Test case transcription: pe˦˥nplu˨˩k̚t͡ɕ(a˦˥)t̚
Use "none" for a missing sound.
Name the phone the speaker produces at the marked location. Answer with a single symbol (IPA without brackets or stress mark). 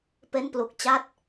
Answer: a˦˥